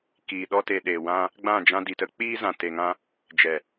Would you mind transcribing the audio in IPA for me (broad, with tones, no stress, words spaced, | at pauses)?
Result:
kiː˨ɗɔ˧te˨ɗeː˨ wã˧ | ɡ͡bã˦˨d͡ʒã˧di˨tə˧ k͡piː˧zã˨ te˨ŋã˧ | d͡ʒɛ˨